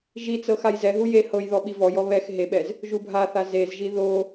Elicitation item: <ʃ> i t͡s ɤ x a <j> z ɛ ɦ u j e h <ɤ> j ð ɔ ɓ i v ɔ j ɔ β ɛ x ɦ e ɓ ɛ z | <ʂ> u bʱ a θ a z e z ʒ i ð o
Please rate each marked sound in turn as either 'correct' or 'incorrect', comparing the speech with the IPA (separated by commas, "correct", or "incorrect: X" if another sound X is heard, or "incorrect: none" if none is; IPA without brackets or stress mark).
incorrect: ʒ, correct, correct, incorrect: ʒ